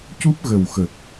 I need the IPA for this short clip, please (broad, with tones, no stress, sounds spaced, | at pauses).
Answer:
c u˦˥ p̚ ɣ ə˨˩ w x ə˨˩ k̚